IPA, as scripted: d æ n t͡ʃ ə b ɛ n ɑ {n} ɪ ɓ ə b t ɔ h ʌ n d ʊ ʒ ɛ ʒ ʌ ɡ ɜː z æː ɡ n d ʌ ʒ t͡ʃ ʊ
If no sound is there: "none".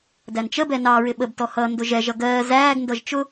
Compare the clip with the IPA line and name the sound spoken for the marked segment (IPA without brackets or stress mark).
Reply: ɹ